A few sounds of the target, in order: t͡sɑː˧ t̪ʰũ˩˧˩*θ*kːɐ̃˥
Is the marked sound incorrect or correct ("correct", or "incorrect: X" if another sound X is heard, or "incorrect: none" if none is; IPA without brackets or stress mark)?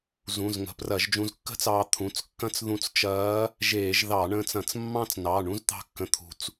incorrect: t͡s